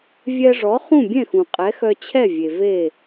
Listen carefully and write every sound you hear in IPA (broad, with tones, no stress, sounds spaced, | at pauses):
vʲ ɛ˧ ʐ ɔ˩˥ χ ũ˥˩ bʲ ɛ̃˥˩ x ũ˩ qʼ ɛ˩˥ x œ˧ t͡ɕʰ ɛ˥˩ vʲ e˩ v e˥˩